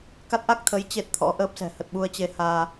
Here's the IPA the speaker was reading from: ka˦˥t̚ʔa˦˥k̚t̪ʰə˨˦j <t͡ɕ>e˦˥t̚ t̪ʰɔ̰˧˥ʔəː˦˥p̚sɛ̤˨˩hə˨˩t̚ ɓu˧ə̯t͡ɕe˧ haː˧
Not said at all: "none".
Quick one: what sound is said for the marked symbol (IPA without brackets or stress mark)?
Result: t͡ɕ